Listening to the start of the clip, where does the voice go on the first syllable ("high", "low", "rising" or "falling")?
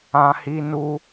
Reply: high